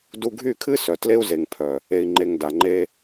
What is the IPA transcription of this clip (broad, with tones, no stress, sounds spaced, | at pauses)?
d u˧ ɡʱ y˦˨ kʰ ɨ˦ s œ˨ t l e˦ u̯ z e˨ ŋ pʰ œ˨ | e˨ i̯ ŋ͡ǃ e˨ ŋ d a˨ ŋ͡ǃ e˧